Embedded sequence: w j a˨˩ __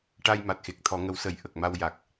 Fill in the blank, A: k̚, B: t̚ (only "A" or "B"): A